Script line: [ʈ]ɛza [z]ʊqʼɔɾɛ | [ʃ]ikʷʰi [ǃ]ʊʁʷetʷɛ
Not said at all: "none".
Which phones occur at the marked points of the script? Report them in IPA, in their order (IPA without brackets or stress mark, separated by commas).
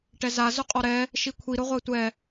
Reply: ʈ, z, ʃ, ɾ